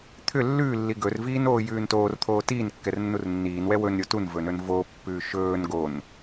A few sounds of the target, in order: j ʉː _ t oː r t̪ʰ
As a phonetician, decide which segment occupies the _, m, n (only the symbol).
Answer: n